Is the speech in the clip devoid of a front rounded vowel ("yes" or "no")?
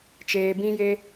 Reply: yes